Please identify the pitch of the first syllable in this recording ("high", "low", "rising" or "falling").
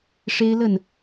high